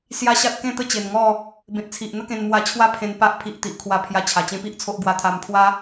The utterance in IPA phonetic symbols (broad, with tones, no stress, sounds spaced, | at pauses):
s j a˦ ɕ a˦ t̚ k ẽ˥˧ t̪ ə˥˧ t͡ɕ e˨˩ n ŋ ɔ˥˧ | b ẽ˨ t̚ t͡sʰ i˨ ʔ n̪ ə˦ k ẽ˧ n m w a˧ t͡ɕʰ w a˥˧ pʰ ẽ˧ n p a˦ ʔ pʰ i˨ ʔ t̪ i˨ ʔ kʰ w a˧ pʰ j a˧ t͡ɕʰ a˨˩ t͡ɕ ẽ˦ p i˦ ʔ t͡sʰ o˦ ʔ ɡ w a˧ t̪ʰ a˧ m pʰ w a˦